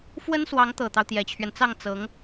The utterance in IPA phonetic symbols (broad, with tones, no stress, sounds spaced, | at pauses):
f w ə˥ n s w ɑ˧˥ ŋ t̪ ɤ˨˩ t̪ ɑ˦ ʊ̯ t̪ j ɛ˧˥ t͡ɕʰ ɥ ɛ˧ n t͡s ɑ˥˩ ŋ t͡s ɤ˧˥ ŋ